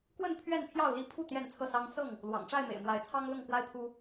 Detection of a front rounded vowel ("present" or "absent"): absent